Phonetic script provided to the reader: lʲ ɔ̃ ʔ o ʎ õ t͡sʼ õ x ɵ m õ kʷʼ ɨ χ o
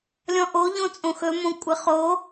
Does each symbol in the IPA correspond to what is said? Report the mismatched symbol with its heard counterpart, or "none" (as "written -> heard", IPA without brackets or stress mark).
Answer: none